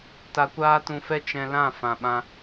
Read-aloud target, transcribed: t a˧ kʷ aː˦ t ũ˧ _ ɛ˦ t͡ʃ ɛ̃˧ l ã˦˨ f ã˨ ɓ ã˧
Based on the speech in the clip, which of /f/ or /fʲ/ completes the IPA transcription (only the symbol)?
f